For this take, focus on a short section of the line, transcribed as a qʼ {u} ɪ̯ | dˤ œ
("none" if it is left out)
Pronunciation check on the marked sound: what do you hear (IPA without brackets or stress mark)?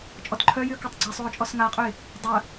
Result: ø